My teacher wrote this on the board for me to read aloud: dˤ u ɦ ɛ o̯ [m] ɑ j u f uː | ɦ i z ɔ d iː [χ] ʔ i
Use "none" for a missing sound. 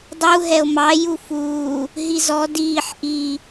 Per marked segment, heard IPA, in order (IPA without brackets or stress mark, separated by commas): m, ħ